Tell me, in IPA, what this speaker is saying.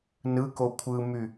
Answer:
n ɯ k o kʷʰ ɯ m y

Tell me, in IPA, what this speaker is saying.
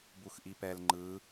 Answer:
b u x ʔ i p ɛ l ŋ͡ǃ ɯ

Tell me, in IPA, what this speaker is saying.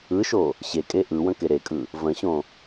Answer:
ɯ ʃ o | ɕ e kʼ e ʔ ɯ w ə̃ k e ɾ e kʼ ɯ | v ə̃ ɕ õ

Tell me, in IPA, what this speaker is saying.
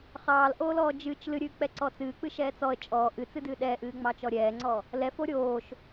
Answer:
χ ɑː l ʔ oː l ɔː d͡ʒ ɨː t͡ʃ l ɨ ɾʲ ɨː k͡p ɛ ǀ ɔ t͡s ɨː k͡p ɨ ʃ ɛː t͡s ɔ ə̯ t͡ʃʼ ɔː ʔ ɨ t͡s ɨ d ɨː ɗ ɛː ʔ ɨː ŋ͡m ɑ t͡ʃ ɔ ɾʲ ɛː ŋ͡ǀ ɔ | l ɛ f o ɾʲ oː ʃ

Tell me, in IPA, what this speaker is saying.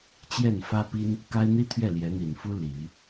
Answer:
t͡ɕ j ɛ˥˩ n f ä˥ p i˥ n | k a˥ ɪ̯ n̪ i˥ t̪ʰ ɥ ɛ˥˩ l j ɛ˧˥ n̪ i˨˩ n f u˥ l i˨˩˦

